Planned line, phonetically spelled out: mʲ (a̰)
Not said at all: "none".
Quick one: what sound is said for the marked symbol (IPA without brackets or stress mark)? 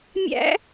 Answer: æ̰